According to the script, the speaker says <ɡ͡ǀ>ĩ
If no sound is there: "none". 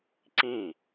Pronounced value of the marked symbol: ǀ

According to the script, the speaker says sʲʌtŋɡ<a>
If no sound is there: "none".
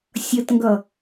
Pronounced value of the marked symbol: ʌ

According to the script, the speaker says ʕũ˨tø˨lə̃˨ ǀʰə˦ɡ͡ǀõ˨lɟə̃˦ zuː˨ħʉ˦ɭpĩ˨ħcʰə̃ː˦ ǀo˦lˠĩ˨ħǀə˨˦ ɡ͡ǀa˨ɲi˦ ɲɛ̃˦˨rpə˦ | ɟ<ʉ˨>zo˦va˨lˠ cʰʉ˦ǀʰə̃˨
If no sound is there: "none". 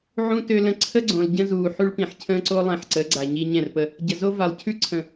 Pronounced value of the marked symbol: ə˨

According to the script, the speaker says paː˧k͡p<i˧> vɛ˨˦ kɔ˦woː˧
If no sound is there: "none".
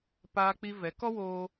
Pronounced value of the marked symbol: i˧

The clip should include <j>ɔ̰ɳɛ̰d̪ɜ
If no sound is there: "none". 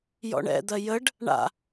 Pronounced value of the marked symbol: j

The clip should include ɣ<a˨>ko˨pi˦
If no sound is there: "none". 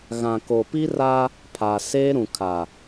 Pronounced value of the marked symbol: ã˨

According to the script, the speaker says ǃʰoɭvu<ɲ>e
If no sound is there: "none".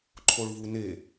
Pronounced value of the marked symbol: n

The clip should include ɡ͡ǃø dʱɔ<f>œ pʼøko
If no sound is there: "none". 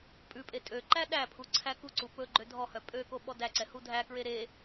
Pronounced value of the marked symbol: h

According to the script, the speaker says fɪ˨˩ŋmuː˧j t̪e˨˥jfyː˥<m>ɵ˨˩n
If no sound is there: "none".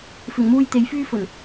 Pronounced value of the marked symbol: f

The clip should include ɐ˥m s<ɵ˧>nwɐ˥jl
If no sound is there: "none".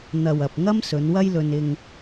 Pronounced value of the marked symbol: ɵ˨˧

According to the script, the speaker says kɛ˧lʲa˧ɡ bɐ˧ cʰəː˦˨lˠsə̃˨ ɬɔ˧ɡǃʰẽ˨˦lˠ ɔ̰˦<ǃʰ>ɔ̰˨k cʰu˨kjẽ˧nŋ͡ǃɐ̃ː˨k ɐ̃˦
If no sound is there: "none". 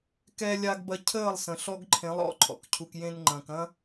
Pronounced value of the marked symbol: ǃʰ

